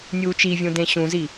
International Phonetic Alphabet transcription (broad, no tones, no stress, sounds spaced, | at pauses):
nʲ uː t͡ʃ i vʲ ũ d ẽ ɕ ũ z i